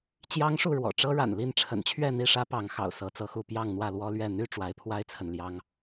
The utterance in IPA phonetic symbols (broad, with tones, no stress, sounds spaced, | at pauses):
t͡ɕ j ɑ˦ ŋ ʂ u˥˨ ɻ w ɔ̰˨˩ ʈ͡ʂ ɤ˦ ɻ a̰˨˩ n l i˥˨ n ʈ͡ʂʰ ə̰˨˩ n t͡ɕʰ ɥ ɛ˥˨ n̪ i˥˨ ʂ ä˦ p ɑ˨˦ ŋ x ɑ̰˨˩ ʊ̯ s ɤ˨˦ t͡s ɤ˨˦ x u˥˨ p j ɑ˥˨ ŋ n̪ w ä˥˨ l w ɔ˦ l ɥ ɛ˥˨ n̪ y˥˨ ʈ͡ʂ w a˨˦ ɪ̯ pʰ w a˦ ɪ̯ t͡sʰ ə˨ n l j ɑ˦ ŋ